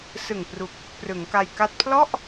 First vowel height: high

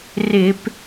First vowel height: high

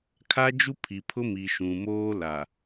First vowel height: low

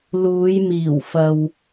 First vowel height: high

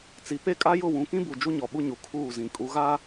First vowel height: high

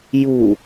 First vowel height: high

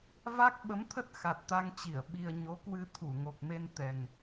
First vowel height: low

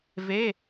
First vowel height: mid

